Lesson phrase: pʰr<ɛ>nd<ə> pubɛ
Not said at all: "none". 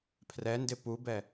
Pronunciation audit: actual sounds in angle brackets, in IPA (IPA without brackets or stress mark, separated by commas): ɛ, ɪ